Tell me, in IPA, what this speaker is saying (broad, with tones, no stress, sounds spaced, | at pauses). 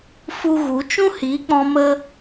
f u˦ ɣ u˨˦ t͡ʃ ũ˦ h i˨˦ k͡p ɔ̃˧ m ə˦